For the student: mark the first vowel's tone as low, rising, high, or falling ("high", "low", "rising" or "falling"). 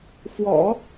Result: low